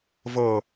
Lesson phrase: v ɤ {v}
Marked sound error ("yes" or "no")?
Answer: yes